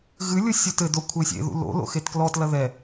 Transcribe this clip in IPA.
ɣ ɨ lʲ u sʲ u t ɘ d o kʷʰ e sʲ ḛ ð ṵ l o̰ l o̰ x e t k l ɔ t l ɐ ð ɛ

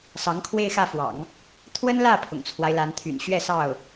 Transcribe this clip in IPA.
s ɑ˧˥ ŋ kʰ w e˥˧ ɪ̯ x ä˥˩ f w ɑ̰˨˩˦ ŋ | t̪ʰ w ə˥ n l ä˥˩ pʰ ʊ̰˨˩ ŋ t͡sʰ w a˦ ɪ̯ l a˧˥ n t̪ʰ y̰˨˩ n ɕ ɥ ɛ˥˧ s ɑ˥˩ ʊ̯

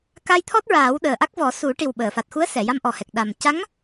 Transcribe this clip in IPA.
k a˧ j t̪ʰ ɔ˦˥ t̚ ɹ aː˨˩˦ w ɗ əː˨˩ ʔ a˦˥ k̚ v ɔ˨˩˦ s u˨˩˦ ʈ i˨˩ w ɓ əː˨˩˨ f a˨˩ t̚ x u˧˥ ə̯ s ɛ˨˩˨ j a˧ m ʔ ɔ˨˩ h ɛ˨˩ k̚ ɗ a˨˩ m c a˧˥ ŋ

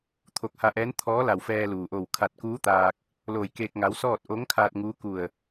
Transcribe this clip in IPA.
t̪ʰ o˧˩ k̚ h a˧ ʔ ɛː˧˥ n t̪ʰ ɔː˧˥ l a˧˩ w f ɛː˧ l uː˩ ʔ o˧˩ w kʰ a˧˩ t̚ k uː˧˥ t̪ aː˧ k̚ | l oː˧˩ j k eː˧ k̚ ŋ a˧˥ w s ɔː˥˨ t̚ ʔ o˧˥ ŋ kʰ aː˧ t̚ ŋ uː˧˥ k u˧˩ ə̯

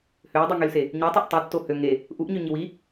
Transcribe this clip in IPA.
h ø j dˤ y ŋ y l s e | ɲ ø tˤ o ʔ tˤ i tː o h ø ŋ e | ʔ u ʔ ɲ ø ɲ i w i

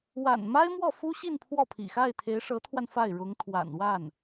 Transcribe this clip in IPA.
w a̰˨˩ n m a˥ ɪ̯ m w ɔ˥˩ f u˥ ɕ i˥˧ n pʰ w ɔ˥˩ pʰ ḭ˨˩ x a˥˩ ɪ̯ t̪ʰ e˧˥ ɪ̯ ʂ ɤ˧˥ t̪ʰ w a˧ n f a˥˩ ɪ̯ ɻ ʊ˧˥ ŋ t̪ʰ w a̰˨˩ n w a˥˩ n

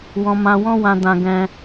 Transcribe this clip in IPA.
w ɔ̃˧ m ã˧ w ɔ̃˦ w ã˧ d ã˧ ɡ ɛ̃˦

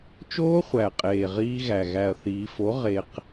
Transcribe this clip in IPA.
t͡ʃ oː˦˥ χʷ æ˨˩ qʼ eː˨˩ ʁ iː˧ ɣ æ˨˩ ɣ æ˨˩ ɐ̯ θ iː˩˧ f o˩˥ ʁ e˧ q

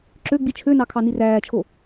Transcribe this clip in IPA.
ǁ ø ɡ͡b i t͡ʃʰ ø n ɑ kʰ ɑ n i r æː t͡ʃʰ o

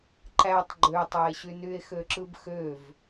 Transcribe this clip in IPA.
ǃ æ tˤ ɡ͡ǃ ø tˤ æ e̯ ɕ y n y e̯ x ø ǁ ɯ b x ø v

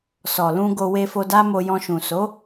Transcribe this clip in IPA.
s ɔ˨ l ũ˧ ɡ o˧ w e˧ f o˧ d a˦ m o˧ j ɔ̃˧ ʃ ũ˨ s o˨˦

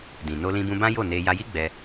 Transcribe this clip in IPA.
d ĩ˨ n o˧ l ĩ˧ b ũ˧ b ã˦ j o˦˨ n e˧ j a˧ j i˦ ɡ͡b ɛ˧

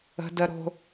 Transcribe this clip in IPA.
ə̤˧ d ə˧ ɾ o̤˧

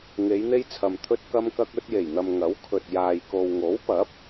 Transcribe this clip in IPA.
ŋ e˨˧ j n̪ e˧ j t͡sʰ ɐ˨ m t̪ʰ ɵ˧ t̚ k ɐ˧ m k ɐ˧ k̚ ɵ˧ t̚ j e˨˩ j n̪ ɐ˨ m ŋ ɐ˨˥ w kʰ ɵ˨ t̚ j aː˨ j k o˨ w ŋ o˨˥ w p ɐ˨˥ p̚

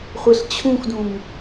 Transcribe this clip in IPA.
χʷ e ɬ t͡ɕʰ ũ x d ũ m

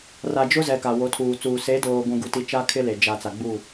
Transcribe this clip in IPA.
r a˨ d͡ʒ ʊ˦ z ɛ˨ k a˨ w o˨˦ tʰ uː˨ t͡s uː˨ s e˨˦ d oː˨ ɡʷ ũ˨ ɡ u˨ t i˨ t͡ʃ a˦ kʰ ɪ˦ l e˨ d͡ʒ a˨ t͡s a˨ ɡ͡b u˦˨

